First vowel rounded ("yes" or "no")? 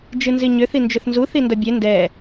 no